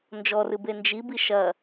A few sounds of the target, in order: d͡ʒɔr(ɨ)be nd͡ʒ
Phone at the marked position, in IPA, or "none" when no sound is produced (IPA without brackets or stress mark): ɨ